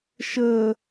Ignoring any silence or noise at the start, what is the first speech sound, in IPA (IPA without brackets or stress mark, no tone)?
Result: ʃ